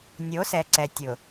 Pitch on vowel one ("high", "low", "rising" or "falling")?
rising